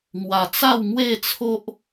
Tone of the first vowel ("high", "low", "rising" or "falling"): low